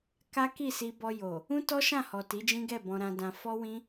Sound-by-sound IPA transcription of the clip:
k a˦ k i˦˨ s i˧ b ɔ˧ j o˨ | ũ˦ t ɔ˦ ʃ ã˦˨ h ɔ˨ t i˨˦ d͡ʒ ĩ˦ ɡ ɛ˦˨ b ɔ̃˧ ɾ ã˧ d ã˧ f ɔ˦ w ĩ˦

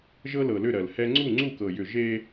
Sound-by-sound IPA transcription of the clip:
ʒ ɤ˦ l ɤ˨ l ʏ˦˨ ɾ ɜ˨ l h ɛ˦ ŋ͡ǀ u˦˨ ŋ͡ǀ u˦˨ k ɤ˨ j ʏ˨ ʒ e˦

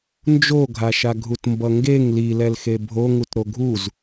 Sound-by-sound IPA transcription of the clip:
n d͡ʒ o ɡʱ a ʃ a ɡʱ u t m b ʌ ŋ ɡ e ŋ l i l ɛ l x e bʱ o ŋ u t ɾ o ɡʱ u z

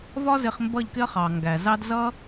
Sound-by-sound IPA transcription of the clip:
v ɒ˦ z ɪ˧ χ m b ʌ˦˨ ʎ k ɪ˦ ɐ̯ χ ɑ˨ ŋ ɡ æ˨ z ɑ˦ d z ʌ˦

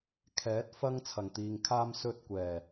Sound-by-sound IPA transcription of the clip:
kʰ ɛː˨˥ t̚ f ɐ˥ ŋ t͡sʰ ɐ˨˩ ŋ t̪ iː˨ ŋ kʰ aː˥ m s ɵ˧ t̚ kʷ ɛː˨˩

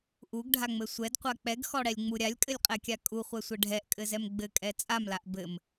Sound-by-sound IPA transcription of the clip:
ʔ u ɡ ɖʱ a ŋ͡m ɘ sʷ ɛ d qʷ a k͡p ɛ ɡ x ɔ ɽ ɛ lʲ ŋ͡m u ɾʲ a lʲ kʼ ɘ lʲ qʼ ɛ kʲ a kʼ u χʷ ɛ sʷ ɘ ɖʱ ɛ ʔ kʼ ɘ z ɛ m ɡ͡b ɘ kʼ ɛ t͡sʼ a m l a ʔ b ɘ m

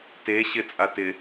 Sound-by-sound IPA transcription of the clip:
t e ɕ ɪ t͡sʼ a t ɪ

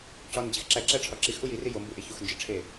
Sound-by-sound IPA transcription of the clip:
c ɒ n d͡ʑ i x ǁ æ ǁ æ ʈ͡ʂʰ ɒ ǁ i x ʔ u j i r i j o m b u ʔ e ç u x n d͡ʒ i ʈ͡ʂʰ e

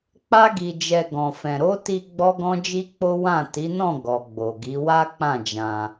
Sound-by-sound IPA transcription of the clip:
k͡p a˦ ɡ i˧ d͡ʒ ɛ˧ ɡ ɔ̃˨ f ɛ̃˨ ɾ o˨˦ t i˧ ɡ͡b ɔ˦ ɡ ɔ̃˦ d͡ʒ i˦ k͡p o˦ w ã˦˨ t i˨˦ n ɔ̃˦˨ ɡ ɔ˨ ɡ͡b o˨ ɡ i˨˦ w a˦ k͡p ã˦˨ d͡ʒ ã˧

